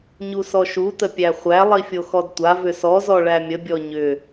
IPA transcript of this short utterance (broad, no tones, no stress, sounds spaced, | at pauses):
ɲ u s ɔ ʃ u t ə pʲ æ χʷ æ lˠ i fʲ o x ɔ d tʷ a v ʏ s ɔ z ɔ ɭ æ mʲ ə bʲ ɔ ɲ ʏ